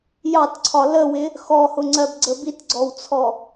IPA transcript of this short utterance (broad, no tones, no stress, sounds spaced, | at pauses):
j ɑ t ǀʰ ɒ l ə w ɪ | x ɔ h ʊ ŋ͡ǀ ɜ b ɡ͡ǀ ə b i t ɡ͡ǀ ɔ w t͡sʰ ɔ